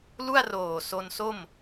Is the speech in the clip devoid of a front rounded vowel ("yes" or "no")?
yes